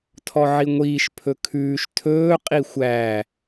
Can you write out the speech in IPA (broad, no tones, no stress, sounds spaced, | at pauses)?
tʰ ɔ ʕ i ŋʷ iː ʃ pʰ ɵ kʰ ʉː ʃ tʰ ɵː qʼ i xʷ æ